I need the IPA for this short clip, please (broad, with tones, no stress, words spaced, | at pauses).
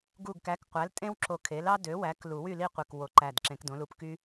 ɡu˧˩ɡkæ˩˥kqʷæ˩˥l tʼẽ˥wǁo˧˩kʰe˩˥lɑ˥ dø˩˥wæ˩˥k lu˨˩˦wy˥˨li˥˨ qʷe˧˩kwo˨˩˦ǃæ˧˩d ǁẽ˨˩˦kdõ˩˥lu˧˩pky˥